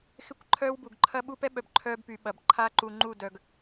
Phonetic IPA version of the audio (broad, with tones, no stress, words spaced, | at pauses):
xɪ˦kʷ ǃʰœː˦wbu˨ɡ ǃʰɐ˦ɓu˦ pɛ˦ɓœ˨b ǃʰœː˦bpy˨ ɓɐ˨b ǃʰaː˦ǃu˨ŋ͡ǃu˦˨dœː˨ɡ